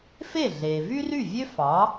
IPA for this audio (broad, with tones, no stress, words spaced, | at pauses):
fe˥˩ɮeː˩ vy˥ry˥˩vʲø˥ fɑ˩˥